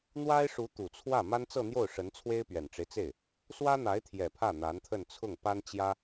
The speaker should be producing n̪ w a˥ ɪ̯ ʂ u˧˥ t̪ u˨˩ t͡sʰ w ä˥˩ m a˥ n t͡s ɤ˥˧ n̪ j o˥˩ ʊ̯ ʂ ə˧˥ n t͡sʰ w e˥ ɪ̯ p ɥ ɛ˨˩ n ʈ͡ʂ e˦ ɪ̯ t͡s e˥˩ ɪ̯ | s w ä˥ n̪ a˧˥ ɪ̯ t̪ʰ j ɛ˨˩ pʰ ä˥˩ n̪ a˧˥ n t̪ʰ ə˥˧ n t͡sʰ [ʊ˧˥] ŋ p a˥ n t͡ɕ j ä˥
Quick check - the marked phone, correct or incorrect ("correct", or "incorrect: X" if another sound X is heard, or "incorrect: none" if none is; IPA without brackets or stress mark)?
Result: incorrect: ʊ˥˩